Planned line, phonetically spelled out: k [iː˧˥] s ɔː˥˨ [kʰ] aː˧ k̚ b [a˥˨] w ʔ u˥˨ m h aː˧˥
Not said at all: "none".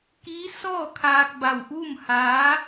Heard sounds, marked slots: iː˧˥, kʰ, a˥˨

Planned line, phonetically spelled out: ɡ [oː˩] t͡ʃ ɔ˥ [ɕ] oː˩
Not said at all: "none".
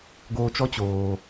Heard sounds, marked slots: oː˧, t͡ɕ

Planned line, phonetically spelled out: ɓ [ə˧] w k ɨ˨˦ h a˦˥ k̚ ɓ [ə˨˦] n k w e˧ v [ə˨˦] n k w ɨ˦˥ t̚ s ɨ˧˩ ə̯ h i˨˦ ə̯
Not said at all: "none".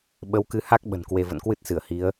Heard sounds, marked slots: ə˨˦, ə̤˨˩, ə̰˧˨

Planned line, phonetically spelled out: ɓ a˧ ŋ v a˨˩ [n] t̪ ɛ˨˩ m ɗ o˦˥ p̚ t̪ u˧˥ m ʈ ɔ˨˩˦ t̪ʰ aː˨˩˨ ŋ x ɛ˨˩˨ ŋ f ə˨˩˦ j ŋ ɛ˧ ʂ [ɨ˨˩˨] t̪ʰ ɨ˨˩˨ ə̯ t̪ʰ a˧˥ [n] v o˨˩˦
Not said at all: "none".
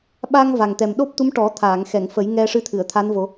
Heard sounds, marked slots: ŋ, ɨ˧˥, n

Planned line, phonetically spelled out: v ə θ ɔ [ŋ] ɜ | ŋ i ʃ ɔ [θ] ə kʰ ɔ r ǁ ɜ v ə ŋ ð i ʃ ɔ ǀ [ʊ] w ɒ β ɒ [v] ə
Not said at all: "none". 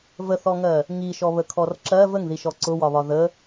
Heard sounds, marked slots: ŋ, β, ʊ, ð

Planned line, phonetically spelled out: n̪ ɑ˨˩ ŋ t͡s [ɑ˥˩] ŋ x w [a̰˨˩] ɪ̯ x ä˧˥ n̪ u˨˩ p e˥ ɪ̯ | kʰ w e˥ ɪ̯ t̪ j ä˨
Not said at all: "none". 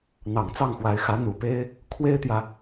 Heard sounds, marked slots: ɑ˥˩, a˧˥

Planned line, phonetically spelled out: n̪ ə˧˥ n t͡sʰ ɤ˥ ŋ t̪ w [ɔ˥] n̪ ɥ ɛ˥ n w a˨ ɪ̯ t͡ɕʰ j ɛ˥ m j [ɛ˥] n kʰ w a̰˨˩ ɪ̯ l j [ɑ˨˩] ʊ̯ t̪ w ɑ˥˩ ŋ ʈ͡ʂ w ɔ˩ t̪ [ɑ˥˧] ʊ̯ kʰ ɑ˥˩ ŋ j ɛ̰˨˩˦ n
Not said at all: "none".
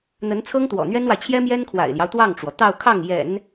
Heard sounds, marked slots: ɔ̰˨˩, ɛ˥, ɑ˦, ɑ˥˧

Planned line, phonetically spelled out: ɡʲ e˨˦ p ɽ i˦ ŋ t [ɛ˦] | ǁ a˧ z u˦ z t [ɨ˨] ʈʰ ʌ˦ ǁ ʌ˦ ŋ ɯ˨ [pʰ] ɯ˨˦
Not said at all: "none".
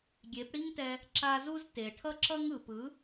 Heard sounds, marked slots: ɛ˧, e˨, p

